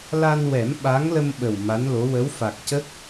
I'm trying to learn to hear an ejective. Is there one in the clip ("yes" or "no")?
no